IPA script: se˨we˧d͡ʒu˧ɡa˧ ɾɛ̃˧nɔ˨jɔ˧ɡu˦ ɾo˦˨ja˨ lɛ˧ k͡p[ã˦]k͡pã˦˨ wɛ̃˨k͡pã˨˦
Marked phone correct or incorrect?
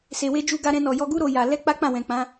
incorrect